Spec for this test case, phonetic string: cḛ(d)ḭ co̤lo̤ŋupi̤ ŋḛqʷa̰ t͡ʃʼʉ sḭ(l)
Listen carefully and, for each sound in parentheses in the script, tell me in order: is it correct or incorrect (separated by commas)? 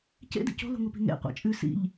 correct, incorrect